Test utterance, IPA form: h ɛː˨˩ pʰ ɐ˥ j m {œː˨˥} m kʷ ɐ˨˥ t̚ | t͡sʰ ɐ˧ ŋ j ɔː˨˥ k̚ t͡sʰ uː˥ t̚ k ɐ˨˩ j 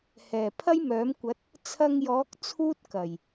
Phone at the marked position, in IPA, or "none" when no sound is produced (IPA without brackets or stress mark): œː˨˥